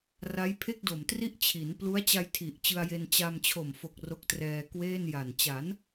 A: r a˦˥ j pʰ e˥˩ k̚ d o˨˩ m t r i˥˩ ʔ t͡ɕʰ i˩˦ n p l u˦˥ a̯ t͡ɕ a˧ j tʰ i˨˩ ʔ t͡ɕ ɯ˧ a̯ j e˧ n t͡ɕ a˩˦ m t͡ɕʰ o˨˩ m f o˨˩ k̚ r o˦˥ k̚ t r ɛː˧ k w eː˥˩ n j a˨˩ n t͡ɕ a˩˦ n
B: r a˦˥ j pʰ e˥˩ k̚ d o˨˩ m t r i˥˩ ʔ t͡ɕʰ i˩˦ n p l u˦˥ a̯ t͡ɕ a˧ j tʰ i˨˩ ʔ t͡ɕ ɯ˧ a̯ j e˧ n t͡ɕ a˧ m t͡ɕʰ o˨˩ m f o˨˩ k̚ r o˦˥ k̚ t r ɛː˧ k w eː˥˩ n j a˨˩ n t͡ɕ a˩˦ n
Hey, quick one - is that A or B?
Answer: B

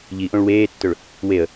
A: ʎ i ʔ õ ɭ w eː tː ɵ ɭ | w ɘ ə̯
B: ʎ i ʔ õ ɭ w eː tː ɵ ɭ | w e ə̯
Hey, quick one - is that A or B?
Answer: B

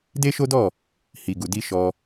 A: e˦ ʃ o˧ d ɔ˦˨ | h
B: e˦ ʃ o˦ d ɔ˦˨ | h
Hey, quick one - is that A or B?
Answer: B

